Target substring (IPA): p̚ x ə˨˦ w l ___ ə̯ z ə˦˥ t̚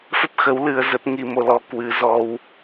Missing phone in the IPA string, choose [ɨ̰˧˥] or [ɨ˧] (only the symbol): ɨ˧